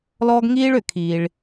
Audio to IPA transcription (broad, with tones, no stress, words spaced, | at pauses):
lɔː˥ɡŋiː˥ɭʏ˩kʰiː˩ɭ